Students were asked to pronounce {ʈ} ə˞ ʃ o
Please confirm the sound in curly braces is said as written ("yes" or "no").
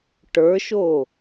yes